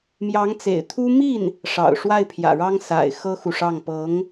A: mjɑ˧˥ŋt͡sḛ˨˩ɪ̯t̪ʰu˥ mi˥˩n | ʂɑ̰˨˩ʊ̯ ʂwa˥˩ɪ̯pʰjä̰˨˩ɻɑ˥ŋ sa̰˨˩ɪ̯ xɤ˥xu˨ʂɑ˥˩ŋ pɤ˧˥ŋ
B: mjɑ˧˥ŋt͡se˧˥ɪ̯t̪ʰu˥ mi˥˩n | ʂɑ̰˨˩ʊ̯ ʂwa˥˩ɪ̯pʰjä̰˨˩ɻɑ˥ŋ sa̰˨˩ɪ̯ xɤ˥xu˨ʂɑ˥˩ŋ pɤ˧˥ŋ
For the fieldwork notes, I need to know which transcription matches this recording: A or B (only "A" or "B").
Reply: A